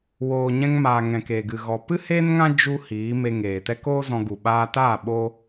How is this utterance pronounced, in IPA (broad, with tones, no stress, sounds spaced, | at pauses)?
w oː˨ ɲ ɛ̃˧ ŋ m aː˨ ŋ ɛ̃˨ k eː˨ ɡ ɨ˨ ɣ ɔ˨ p ɨ˦ h eː˦ n ŋ ã˦ d͡ʒ u˦ h iː˨˦ m e˧ ŋ eː˨ t ɛ˦ k oː˦ z ɔ̃˧ ɡ u˨ ɓ aː˧ t aː˦˨ ɓ o˦